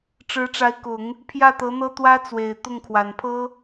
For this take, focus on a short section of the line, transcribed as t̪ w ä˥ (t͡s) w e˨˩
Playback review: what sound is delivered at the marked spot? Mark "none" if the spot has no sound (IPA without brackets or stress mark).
t͡s